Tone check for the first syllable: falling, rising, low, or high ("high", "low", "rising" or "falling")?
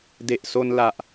low